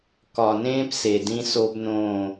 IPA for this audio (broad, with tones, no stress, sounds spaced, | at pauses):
k ɒ˨ n ẽː˦ p s e˨ d ĩ˦ s o˦ b n õ˦˨